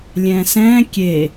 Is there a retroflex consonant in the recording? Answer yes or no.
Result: no